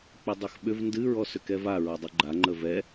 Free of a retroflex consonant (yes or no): yes